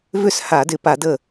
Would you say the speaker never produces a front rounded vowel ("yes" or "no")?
no